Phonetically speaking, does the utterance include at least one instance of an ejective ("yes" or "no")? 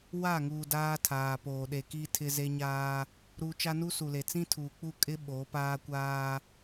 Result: yes